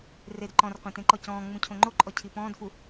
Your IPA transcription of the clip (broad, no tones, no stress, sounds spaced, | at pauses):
r e d ǃ ɔ̃ r qʷ ẽ t ẽ ǃ ɔ c ɔ̃ː ŋ͡m ũ cʰ õ ŋ͡ǃ o ǃʼ ɔ cʰ i p ɔ̃ː d f u